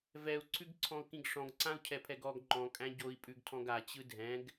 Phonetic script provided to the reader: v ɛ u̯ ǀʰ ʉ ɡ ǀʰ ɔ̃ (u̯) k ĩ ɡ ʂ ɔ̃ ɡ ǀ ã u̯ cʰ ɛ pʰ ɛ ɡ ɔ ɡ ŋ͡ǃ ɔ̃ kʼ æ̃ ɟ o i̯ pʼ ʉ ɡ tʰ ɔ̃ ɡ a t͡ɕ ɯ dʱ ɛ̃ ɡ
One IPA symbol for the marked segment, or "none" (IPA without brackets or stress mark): u̯